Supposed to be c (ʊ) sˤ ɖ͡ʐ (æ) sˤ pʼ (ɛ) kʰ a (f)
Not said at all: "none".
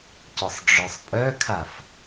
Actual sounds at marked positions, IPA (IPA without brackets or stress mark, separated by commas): ʊ, œ, œ, f